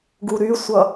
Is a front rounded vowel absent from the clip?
no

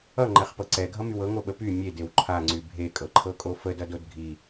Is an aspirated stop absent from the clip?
no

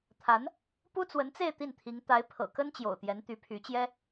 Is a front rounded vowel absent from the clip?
no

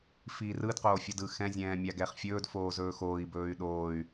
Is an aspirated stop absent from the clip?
yes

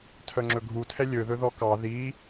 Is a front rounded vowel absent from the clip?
no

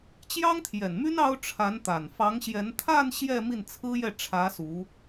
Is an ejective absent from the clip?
yes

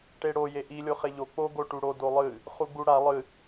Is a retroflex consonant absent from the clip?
no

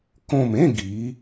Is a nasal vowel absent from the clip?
no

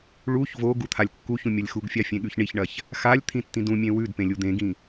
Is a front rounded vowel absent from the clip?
yes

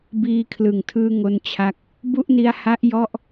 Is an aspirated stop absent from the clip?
no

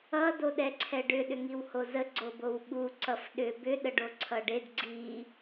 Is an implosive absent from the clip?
no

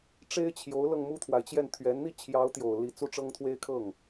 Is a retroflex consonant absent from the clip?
no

